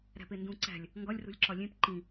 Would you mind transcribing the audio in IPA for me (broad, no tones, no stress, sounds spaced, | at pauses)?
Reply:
ɾ æ̤ p e n d ũ ǀ æ̤ lʲ | ŋ ɡ ɒ lʲ r ṳ lʲ ǁ ɒ lʲ ẽ p ǃ ĩ